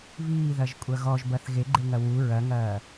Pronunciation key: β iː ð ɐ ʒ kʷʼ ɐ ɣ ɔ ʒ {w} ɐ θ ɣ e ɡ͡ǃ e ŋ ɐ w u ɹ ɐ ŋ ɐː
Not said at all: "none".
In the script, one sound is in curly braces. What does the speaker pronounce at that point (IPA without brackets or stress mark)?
b